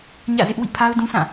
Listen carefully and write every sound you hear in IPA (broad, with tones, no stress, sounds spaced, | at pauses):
ɲ ä̰˦˨ z ɪ˦ ʔ w ḭ˦˨ pʰ a˦ ʊ̯ d ũ˦ sʰ ã˦˨